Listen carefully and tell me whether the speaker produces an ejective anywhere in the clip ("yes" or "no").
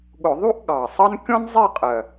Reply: yes